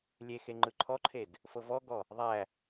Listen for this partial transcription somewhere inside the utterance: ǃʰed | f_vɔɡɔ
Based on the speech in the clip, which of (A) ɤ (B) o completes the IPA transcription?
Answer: A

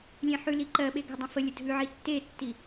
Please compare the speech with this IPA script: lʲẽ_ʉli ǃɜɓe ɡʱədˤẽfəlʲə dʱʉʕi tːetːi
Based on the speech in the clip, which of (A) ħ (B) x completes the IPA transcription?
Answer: A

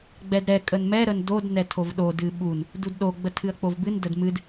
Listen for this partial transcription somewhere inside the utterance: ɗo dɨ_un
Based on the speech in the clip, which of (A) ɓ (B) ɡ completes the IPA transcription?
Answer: A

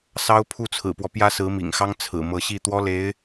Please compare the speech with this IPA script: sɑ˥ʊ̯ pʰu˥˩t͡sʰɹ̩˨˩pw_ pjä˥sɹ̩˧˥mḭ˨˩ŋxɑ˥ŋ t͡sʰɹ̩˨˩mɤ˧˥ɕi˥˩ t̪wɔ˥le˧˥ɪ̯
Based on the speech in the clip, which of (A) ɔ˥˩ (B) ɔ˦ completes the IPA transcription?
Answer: B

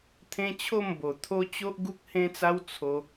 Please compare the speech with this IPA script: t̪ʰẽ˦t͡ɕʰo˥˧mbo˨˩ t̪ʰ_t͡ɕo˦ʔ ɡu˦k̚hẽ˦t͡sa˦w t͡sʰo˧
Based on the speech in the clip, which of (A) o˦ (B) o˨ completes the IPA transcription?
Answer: A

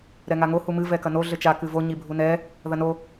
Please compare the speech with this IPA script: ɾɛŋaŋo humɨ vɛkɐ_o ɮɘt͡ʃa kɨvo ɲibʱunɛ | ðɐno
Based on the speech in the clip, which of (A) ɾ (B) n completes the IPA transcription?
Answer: B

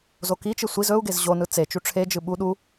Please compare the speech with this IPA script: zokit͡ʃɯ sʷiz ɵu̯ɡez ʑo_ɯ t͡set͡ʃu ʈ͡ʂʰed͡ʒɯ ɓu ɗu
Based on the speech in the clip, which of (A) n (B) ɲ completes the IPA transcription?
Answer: A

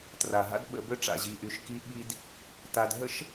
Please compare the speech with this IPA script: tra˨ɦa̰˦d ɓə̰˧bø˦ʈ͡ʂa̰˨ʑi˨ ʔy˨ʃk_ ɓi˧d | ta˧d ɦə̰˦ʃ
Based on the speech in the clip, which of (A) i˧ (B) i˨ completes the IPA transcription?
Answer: A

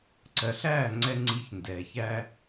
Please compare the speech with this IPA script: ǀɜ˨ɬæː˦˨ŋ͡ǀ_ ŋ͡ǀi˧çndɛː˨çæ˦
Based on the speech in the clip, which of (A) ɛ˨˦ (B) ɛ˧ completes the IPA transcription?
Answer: B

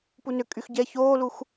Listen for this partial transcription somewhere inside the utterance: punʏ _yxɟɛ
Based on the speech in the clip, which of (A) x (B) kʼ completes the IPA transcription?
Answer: B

